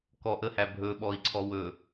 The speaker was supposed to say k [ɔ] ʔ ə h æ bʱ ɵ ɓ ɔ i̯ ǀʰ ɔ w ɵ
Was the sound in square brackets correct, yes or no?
yes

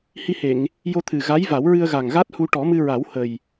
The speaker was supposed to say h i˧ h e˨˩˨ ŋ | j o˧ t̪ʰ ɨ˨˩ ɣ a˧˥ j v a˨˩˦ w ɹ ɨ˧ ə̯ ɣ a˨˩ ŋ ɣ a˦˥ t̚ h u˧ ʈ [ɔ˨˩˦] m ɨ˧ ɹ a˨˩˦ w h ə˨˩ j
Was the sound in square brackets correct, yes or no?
yes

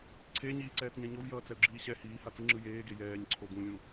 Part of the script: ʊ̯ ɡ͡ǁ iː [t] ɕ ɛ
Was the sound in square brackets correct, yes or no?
no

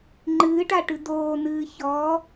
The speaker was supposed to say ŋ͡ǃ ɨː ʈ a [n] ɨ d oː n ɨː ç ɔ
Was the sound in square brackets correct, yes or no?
no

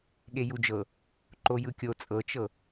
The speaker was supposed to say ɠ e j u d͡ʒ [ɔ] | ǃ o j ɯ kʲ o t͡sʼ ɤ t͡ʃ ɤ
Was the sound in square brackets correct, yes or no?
no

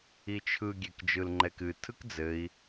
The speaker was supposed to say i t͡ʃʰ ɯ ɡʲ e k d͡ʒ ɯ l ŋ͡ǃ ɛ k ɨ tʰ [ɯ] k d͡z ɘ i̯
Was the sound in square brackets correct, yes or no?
yes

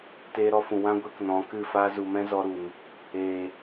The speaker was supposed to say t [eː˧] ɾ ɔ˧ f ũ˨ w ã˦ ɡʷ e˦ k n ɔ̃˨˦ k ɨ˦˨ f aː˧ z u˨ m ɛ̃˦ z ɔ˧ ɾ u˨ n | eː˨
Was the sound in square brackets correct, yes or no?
yes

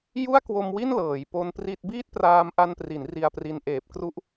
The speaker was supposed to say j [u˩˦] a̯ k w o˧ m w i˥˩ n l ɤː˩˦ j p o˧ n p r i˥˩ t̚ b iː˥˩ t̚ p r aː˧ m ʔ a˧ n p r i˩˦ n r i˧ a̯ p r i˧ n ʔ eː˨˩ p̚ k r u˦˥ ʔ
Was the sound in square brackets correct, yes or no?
no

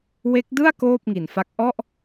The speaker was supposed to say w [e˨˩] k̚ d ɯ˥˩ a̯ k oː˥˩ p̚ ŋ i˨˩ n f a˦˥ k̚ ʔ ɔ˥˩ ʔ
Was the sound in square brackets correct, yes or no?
no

